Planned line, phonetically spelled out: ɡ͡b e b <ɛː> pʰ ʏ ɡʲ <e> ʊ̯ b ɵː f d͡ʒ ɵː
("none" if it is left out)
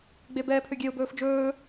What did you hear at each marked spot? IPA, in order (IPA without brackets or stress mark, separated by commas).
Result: ɛː, e